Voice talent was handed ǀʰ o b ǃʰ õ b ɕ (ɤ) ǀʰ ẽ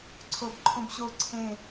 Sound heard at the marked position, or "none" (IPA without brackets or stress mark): o